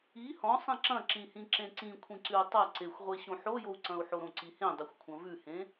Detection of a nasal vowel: present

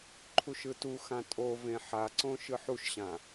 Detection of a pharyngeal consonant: present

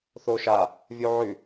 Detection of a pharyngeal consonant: present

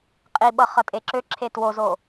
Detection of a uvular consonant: present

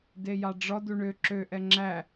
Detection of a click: present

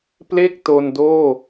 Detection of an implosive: absent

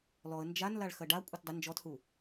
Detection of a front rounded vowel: absent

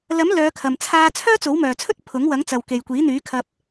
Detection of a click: absent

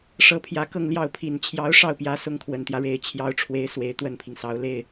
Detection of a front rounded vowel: absent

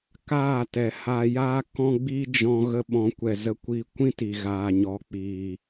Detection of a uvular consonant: absent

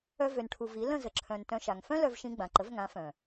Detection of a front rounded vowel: present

